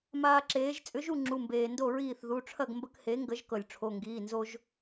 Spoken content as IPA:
m aː˦ ǁ eː˨˥ ʒ t͡sʼ ʏ˨˥ ʒ u˥˨ ŋ͡ǁ u˩˧˩ m b eː˩ n d o˥˨ ɹ iː˥˨ θ ð u˩˧˩ ʈ͡ʂʰ ɐ˥˨ ɡ m b ə˦ k h e˨˥ ŋ ɡ ə˨˥ ʒ k ɤ˩ lʲ ʈ͡ʂʰ o˩˧˩ ŋ ɡ iː˩˧˩ n z o˦ ʒ

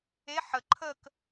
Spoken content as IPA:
e ħ ə ǃʰ ə k

